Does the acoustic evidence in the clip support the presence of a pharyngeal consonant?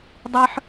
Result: yes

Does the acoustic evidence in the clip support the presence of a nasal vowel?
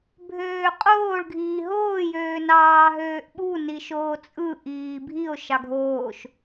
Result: no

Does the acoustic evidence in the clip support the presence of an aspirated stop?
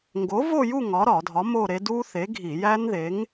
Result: no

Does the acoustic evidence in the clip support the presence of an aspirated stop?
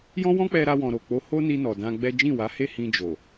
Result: no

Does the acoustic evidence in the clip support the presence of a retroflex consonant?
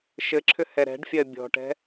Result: yes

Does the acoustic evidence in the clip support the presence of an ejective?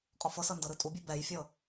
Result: yes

